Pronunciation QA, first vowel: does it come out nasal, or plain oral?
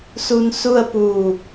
oral